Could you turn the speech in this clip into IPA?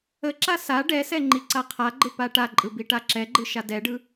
əǁa sa ɖɛsɛ ŋ͡ǃiǀaqʰaɡ͡ǃɯ paʈaǃʼɯ biʈaǁɛɡ͡ǃɯ ʃadɛɖɯ

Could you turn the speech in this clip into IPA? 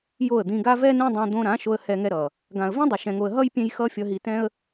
jo˦˨ə̯d̪ĩ˧ɡa˦ vɛ˦nẽ˦ dˤã˧d̪õ˧ɾã˨˦ʃo˧ə̯ hɛ˧ŋɛ˧ɾʌ˨ | ɡã˨ə̯vĩ˦ dˤo˧ʃɛ̃˧ŋo˧ə̯ ɦʌ˦j pʲẽ˦j xʌ˦fʲʌ˧ɦi˧tɛ̃˦ə̯

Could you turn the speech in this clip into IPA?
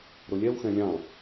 ɾʊlʲɛwxɛ̃ lʲɑ̃

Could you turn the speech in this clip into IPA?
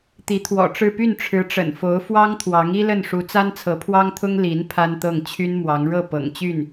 t̪i˧˥t̪ʰwɔ̰˨˩ʈ͡ʂɻ̩˥˧ py˥˩nʈ͡ʂʰɻ̩˧˥ʈ͡ʂə̰˨˩n fo˧˥ʊ̯fwɑ˥ŋt̪ʰwɑ˧˥ŋ i˥lə˥˩nʂu˧˥ t͡sa˥nt͡sʰɤ˧˥pʰwɑ˥ŋt̪ʰʊ˥ŋ li˧˥n pʰa˥nt̪ɤ˥˩ŋ t͡ɕʰy˥nmwɑ˧˥ŋ ɻɤ˥˩ pɤ̰˨˩ŋt͡ɕy˥˩n

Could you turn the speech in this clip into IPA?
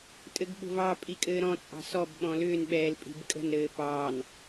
tʼɘɡɓo̤vɑ pʼikʼɘːɾɔ̃ t͡sʼɑ̤sɔb ɓɔ̃lʏːn ɓɛːlpʼi̤bkʼə̤n ɾɘːpɑːn

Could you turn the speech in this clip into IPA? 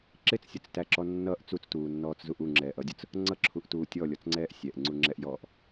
ǁɪt͡ssʲʊt͡stæǁɔ nːʌʔ t͡sut͡stuːnːɔːt͡szuʔ uŋ͡ǁɛːʔʌdʲʊt͡s | ŋ͡ǀʌǁʰuʔtuː tʲɔlʲɔt͡sŋ͡ǀɛːʔ sʲɛʔŋ͡ǀuŋ͡ǁɛʔjɔːʔ

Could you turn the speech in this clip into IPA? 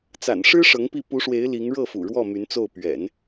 t͡sa̰˨˩n ʂɻ̩˥ ʂɤ˧˥ŋpi˥˩ pu˧˥ʂwe˧˥ɪ̯ li˧˥ŋ ɻɤ˥˩fṵ˨˩ ɻwɔ˥˩ my˧˥nt͡so˥˩ʊ̯ pɥɛ̰˨˩˦n

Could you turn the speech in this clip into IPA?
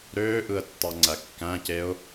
ɾøːʔɯə̯tːɑŋ͡ǀæ kːæ̃ceʊ̯

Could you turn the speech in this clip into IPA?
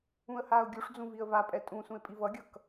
ũə̯haːʊ̯ɡʲuʂd͡zũ viə̯vapʼɛ tʼũ sũɪ̯pʼivʌɡʲʌk

